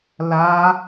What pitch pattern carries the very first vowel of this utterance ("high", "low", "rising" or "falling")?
high